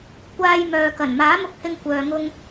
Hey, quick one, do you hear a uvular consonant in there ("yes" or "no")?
no